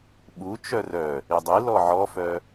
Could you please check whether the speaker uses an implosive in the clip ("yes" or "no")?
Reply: yes